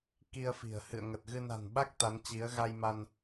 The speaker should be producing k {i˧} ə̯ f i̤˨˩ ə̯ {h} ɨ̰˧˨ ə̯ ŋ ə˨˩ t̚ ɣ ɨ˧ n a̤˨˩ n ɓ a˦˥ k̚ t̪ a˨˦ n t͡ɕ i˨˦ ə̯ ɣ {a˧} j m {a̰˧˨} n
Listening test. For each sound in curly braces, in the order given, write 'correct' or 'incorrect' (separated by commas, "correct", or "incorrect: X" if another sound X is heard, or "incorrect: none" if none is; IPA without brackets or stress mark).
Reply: correct, correct, correct, incorrect: a˧